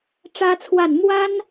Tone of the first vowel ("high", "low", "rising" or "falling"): high